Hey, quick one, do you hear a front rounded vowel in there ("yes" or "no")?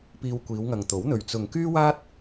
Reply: yes